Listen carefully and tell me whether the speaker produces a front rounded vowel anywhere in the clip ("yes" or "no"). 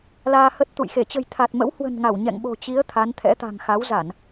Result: no